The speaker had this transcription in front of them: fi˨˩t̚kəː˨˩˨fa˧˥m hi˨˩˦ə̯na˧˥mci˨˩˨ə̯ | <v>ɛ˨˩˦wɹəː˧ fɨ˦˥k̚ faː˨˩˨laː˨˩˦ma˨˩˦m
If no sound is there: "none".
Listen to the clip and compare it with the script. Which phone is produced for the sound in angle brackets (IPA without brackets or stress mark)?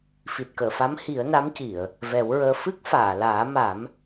v